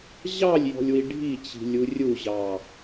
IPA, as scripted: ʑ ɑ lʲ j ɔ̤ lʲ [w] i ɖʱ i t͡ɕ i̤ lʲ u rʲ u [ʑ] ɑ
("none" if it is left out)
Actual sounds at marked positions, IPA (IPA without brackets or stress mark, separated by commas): w, ʑ